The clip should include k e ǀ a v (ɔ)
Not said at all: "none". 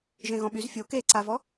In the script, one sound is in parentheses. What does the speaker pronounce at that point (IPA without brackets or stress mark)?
ɔ